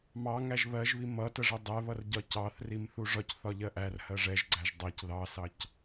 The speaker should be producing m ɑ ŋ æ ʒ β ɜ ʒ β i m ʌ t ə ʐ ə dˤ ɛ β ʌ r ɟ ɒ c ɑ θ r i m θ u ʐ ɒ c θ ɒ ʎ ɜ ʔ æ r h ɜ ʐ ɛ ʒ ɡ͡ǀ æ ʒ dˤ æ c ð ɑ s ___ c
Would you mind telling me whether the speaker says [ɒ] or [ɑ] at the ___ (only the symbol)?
ɑ